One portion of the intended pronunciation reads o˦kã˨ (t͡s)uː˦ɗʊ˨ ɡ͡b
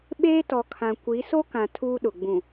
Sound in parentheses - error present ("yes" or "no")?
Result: yes